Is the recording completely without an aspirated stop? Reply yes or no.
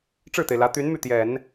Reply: yes